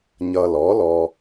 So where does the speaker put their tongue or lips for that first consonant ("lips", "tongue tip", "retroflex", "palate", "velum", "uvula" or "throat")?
palate